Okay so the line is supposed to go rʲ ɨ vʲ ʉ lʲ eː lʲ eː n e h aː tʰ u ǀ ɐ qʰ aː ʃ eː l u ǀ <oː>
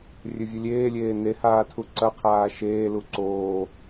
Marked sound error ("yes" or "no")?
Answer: no